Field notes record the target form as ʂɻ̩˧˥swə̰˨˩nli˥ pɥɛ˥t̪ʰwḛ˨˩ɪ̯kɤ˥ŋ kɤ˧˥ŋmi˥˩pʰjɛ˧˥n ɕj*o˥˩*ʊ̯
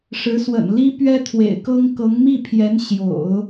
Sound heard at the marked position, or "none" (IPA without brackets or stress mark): o̰˨˩˦